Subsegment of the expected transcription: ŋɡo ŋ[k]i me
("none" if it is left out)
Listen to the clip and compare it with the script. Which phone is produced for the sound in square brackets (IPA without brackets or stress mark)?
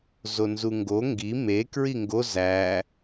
ɡ